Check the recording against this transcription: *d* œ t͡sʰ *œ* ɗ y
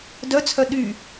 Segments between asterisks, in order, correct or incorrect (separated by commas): correct, correct